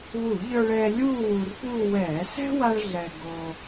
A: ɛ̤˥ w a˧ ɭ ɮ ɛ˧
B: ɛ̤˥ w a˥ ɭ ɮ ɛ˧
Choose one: B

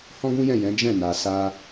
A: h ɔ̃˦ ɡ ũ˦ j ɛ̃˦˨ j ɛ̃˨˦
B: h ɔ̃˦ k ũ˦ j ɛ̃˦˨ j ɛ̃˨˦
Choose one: A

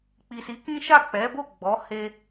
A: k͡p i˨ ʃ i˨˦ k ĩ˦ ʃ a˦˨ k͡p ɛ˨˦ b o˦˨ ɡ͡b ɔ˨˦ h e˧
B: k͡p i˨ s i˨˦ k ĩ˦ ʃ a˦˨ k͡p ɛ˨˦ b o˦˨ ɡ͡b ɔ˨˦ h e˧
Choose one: B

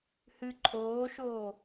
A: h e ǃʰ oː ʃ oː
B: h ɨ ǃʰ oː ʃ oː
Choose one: B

